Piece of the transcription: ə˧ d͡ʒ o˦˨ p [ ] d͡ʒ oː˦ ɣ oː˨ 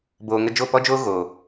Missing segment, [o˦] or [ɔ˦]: ɔ˦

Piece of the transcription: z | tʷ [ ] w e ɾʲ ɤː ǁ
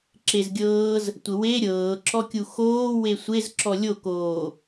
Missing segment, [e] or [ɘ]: ɘ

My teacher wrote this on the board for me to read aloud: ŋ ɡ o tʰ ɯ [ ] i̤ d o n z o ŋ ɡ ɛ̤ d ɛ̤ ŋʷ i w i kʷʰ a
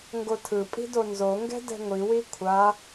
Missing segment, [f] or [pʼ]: pʼ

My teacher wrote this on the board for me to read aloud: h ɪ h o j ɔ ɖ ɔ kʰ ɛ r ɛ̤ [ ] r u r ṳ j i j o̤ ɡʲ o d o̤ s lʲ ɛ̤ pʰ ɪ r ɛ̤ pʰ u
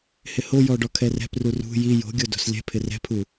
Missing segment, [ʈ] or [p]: p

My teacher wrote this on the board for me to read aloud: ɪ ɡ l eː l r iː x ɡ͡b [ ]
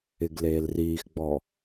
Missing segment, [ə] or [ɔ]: ɔ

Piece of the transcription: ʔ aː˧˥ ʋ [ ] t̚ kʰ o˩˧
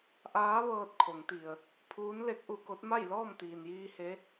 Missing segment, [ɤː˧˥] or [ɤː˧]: ɤː˧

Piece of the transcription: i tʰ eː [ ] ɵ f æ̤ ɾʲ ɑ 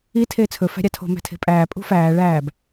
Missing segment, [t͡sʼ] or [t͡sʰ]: t͡sʰ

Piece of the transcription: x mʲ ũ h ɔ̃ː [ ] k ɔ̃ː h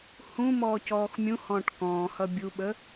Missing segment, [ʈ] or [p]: ʈ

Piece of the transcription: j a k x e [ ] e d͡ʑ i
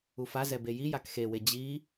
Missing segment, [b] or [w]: w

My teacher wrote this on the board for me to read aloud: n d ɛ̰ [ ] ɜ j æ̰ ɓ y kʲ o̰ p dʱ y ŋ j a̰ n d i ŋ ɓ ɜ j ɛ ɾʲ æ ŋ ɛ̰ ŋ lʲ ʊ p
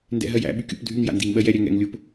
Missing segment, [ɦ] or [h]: ɦ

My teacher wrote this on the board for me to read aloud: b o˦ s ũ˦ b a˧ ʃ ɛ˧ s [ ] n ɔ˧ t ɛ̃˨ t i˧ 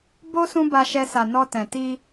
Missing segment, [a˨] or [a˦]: a˨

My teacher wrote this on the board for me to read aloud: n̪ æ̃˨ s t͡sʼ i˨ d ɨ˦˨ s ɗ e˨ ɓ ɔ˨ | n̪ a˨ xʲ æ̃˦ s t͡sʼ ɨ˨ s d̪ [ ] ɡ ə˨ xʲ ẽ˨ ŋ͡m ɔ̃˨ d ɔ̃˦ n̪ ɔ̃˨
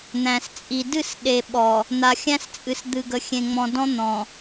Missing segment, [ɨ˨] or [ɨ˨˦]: ɨ˨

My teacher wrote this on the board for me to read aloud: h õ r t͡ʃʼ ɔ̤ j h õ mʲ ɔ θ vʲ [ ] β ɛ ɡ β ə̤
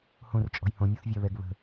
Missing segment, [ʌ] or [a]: a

